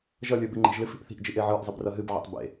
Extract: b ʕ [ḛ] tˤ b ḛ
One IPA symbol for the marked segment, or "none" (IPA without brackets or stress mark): ḛ